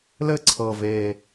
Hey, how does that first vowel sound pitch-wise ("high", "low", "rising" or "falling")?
falling